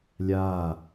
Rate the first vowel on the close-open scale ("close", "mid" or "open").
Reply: open